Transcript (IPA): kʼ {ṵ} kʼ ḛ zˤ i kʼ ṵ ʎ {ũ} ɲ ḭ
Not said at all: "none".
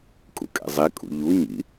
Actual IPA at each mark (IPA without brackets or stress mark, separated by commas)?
ṵ, u